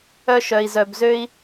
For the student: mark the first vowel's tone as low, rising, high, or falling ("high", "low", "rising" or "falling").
high